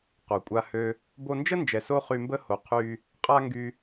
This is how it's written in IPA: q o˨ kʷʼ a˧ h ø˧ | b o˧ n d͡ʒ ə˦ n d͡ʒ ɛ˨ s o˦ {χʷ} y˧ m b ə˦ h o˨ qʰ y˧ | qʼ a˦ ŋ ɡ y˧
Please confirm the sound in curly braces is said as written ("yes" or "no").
no